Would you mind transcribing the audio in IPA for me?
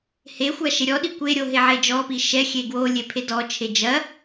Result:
hexʷa ʃeɾʲɔɗi kʷeɾʲo ɦeʕed͡ʒɔpi ʃɛxʲe ɡwo lʲepʰedɔt͡ʃʰe d͡ʒɐ

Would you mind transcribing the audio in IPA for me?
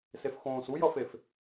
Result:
sefxõːs ujʌfef

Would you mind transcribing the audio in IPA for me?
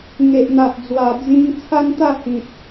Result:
ŋe˨ʔn̪a˨ʔd͡zwa˨˩ d͡zĩ˧ŋ t͡sʰa˦nt̪a˥˧hĩ˨p̚

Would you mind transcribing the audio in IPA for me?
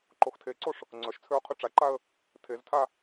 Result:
ǃoxtʰeǀoʂ | ŋ͡ǀœʃt͡sʰøʊ̯ qʰyʈ͡ʂaǃaə̯ | tʰeztʰa

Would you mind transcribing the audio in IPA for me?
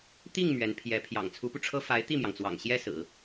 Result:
t̪i˥˩ŋ mɥɛ˧˥n pʰjɛ˧˥ pʰjɑ̰˨˩ŋt͡sʰu˧˥pu˧ʈ͡ʂʰɤ˥ fa˧˥ɪ̯t̪i˥˩mjɑ˩ŋt͡swɑ̰˨˩ŋ ɕjɛ˥sɹ̩˨˩˦

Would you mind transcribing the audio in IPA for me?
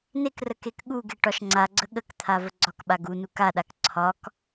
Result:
nekrə kekɠuɡe ʈɒʃŋ͡ǀaɡ͡ǀə ɠəkt̪ʰa vəɡ͡ǀɒkɓa ɡunu kaɗak ǀʰɒk

